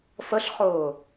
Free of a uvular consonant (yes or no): no